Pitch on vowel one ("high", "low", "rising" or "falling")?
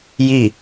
falling